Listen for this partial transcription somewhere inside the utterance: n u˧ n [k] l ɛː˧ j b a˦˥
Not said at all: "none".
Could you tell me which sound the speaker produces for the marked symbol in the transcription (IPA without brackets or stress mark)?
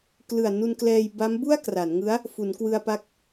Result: k